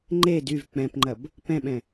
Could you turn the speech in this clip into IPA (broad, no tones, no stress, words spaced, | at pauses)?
ŋ͡ǃed yv k͡pɛ̃pŋ͡ǃɐb | pɛ̃ɓɛ̃